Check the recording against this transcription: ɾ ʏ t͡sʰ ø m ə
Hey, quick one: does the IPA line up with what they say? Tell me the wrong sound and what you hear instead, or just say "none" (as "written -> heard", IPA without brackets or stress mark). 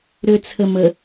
ø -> ə